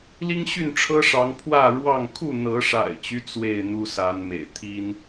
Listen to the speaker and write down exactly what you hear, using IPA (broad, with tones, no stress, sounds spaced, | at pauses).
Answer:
l i˦ ŋ ɕ y˥˨ n ʈ͡ʂʰ ɤ˦ ʂ ɑ˨˦ ŋ pʰ w ä˥˨ ɻ w ɑ˥˨ ŋ kʰ u˥˨ n̪ ɤ˨˦ ʂ a̰˨˩ ɪ̯ t͡ɕ y˦ t͡s w e˥˨ ɪ̯ n̪ u˦ s a˨˦ n m ḛ˨˩ ɪ̯ t̪ʰ i˦ n